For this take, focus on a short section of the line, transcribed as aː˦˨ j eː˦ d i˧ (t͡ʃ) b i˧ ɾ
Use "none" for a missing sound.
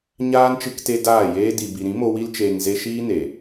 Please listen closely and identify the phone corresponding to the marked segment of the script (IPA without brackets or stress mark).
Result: none